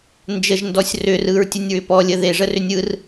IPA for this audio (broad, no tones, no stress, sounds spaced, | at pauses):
n d͡ʒ ə ʒ n d ɔ sʲ r ʏ r ɯ ɹ tʲ ə nʲ ɹ ʏ p ɔ lʲ ə ð e ʐ ə r ʏ nʲ ɯ r